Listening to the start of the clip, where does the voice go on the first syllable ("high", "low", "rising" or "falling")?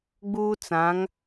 high